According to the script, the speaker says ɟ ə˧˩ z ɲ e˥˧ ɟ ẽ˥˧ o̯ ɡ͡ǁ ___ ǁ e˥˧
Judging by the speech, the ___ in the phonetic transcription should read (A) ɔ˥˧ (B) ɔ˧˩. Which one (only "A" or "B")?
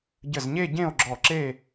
B